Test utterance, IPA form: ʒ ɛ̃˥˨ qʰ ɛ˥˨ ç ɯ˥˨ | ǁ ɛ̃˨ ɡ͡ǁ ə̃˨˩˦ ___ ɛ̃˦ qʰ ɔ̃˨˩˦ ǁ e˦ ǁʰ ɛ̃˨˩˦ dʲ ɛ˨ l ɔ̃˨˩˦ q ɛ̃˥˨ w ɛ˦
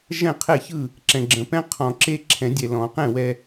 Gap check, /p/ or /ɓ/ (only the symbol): p